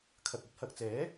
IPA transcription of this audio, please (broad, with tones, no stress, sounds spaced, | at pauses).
kʰ ɐ˨ k̚ ɵ˧ t̚ h ɐ˨ k̚ t͡s ɛː˨˥